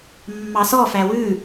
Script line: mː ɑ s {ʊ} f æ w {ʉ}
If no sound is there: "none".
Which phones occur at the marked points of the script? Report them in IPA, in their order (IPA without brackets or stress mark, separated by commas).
ɔ, ʉ